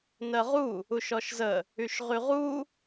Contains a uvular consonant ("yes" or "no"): yes